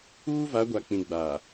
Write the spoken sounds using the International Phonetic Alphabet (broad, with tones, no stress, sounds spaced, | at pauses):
uː˦ v a˨˦ ɡʷ a˨ k͡p ĩ˨ ɡ͡b aː˨